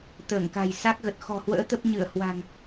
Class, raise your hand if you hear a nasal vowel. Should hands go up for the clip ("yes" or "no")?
no